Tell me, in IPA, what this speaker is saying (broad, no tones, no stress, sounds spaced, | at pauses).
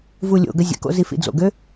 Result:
v u lʲ o̰ ɡ ə zʲ ə̰ k o̰ z i f ḭ d͡z o̰ ɡ ø